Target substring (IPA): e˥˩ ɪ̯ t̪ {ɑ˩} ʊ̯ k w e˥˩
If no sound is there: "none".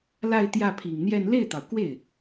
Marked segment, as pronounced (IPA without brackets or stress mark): ɑ˩